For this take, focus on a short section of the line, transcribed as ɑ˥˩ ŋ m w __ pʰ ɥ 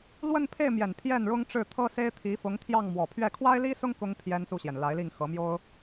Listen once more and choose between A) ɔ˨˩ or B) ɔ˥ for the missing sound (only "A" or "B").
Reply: A